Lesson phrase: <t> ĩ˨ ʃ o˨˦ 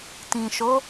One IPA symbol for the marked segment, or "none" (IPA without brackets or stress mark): t